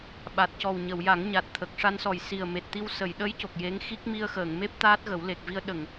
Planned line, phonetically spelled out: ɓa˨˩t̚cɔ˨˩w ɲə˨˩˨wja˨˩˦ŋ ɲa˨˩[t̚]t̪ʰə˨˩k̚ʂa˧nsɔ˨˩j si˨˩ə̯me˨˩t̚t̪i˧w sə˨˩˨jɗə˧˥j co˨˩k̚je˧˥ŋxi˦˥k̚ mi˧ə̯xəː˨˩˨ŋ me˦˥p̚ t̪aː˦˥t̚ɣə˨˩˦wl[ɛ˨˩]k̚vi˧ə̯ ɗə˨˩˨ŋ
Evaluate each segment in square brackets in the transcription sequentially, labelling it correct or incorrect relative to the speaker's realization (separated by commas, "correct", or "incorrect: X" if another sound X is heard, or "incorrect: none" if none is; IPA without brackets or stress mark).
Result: correct, incorrect: e˨˩